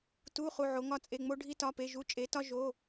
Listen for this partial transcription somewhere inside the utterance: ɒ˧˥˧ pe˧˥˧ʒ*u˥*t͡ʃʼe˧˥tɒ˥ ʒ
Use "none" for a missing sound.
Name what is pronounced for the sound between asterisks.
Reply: u˧˥˧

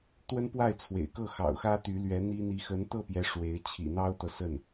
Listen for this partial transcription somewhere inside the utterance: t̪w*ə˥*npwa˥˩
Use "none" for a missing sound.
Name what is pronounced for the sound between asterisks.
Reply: ə˥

